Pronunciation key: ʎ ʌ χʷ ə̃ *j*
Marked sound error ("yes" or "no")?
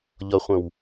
yes